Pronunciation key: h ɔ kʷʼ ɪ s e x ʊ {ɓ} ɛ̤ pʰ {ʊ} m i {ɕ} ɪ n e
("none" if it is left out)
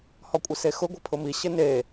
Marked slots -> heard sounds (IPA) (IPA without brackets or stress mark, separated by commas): ɡʷ, ʊ, ɕ